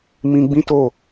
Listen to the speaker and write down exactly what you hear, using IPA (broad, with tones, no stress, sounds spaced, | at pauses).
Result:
m ĩ˧ ɡ͡b ĩ˦ t o˦˨